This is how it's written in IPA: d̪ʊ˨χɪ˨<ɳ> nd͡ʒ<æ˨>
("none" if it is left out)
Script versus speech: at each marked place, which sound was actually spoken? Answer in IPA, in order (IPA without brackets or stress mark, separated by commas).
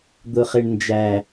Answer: ɳ, æ˨